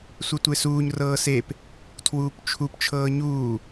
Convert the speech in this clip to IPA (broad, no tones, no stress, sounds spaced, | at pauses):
sʷ ɛ tʷ e s uː ɲ r ɤː s e p | tʰ w uː p t͡ʃʰ u p t͡ʃʰ ɤː ɲ uː